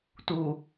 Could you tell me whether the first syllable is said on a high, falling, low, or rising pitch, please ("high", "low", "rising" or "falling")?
low